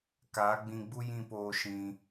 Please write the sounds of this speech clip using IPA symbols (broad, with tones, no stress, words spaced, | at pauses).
kaː˨˦ɡ͡bĩ˧ɡ͡bu˦ jĩ˦˨poː˧ ʃĩ˧